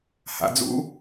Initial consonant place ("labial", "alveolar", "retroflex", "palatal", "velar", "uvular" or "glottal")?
glottal